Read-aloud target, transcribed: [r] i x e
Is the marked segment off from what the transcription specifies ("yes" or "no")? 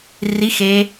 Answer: no